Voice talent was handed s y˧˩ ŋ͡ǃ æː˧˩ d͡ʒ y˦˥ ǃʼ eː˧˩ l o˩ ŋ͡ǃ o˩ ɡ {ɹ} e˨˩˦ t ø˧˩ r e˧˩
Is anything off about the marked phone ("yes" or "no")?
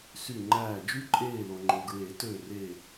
no